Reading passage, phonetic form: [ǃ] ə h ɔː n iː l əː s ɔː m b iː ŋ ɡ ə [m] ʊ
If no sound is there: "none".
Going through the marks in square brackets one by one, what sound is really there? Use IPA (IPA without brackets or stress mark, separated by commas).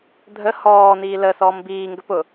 dʱ, p